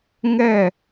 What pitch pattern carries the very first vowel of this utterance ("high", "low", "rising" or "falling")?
falling